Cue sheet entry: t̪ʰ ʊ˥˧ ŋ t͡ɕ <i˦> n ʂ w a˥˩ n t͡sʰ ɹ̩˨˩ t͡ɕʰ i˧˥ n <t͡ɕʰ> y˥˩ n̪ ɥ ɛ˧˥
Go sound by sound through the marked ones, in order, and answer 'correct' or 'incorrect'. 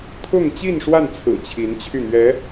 incorrect, correct

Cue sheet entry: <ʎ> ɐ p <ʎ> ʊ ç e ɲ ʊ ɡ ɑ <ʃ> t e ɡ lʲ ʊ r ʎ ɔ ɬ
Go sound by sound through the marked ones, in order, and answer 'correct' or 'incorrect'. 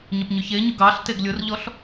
incorrect, incorrect, incorrect

